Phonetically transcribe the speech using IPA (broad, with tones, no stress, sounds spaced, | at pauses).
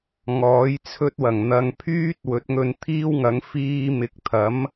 ŋ ɔː˨˥ j t͡sʰ ɵ˥ t̚ w ɐ˨˩ ŋ n̪ ɐ˨ ŋ pʰ yː˥ t̚ w ɵ˨˥ t̚ ŋ ɵ˧ n t̪ʰ iː˥ w ŋ ɐ˨˥ ŋ f iː˧ m ɪ˨˥ k̚ t̪ʰ ɐ˨˥ m